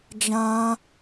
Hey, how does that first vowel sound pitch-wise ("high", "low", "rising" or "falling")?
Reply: high